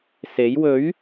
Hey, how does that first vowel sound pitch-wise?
rising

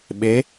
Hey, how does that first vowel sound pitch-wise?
rising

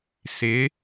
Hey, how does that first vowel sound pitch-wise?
rising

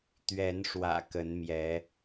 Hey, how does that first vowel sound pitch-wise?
rising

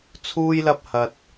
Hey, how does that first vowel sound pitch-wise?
high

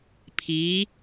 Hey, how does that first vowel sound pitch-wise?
rising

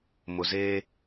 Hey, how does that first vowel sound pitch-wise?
low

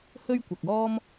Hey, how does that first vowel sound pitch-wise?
high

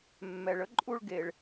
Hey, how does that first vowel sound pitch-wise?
low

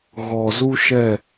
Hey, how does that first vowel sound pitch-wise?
low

